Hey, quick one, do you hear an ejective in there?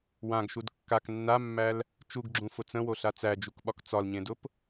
no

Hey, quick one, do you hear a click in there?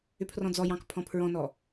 no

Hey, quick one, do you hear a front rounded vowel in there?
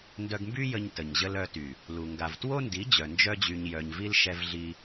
yes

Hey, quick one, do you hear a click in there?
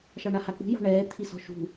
no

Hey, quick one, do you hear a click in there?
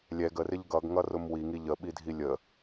no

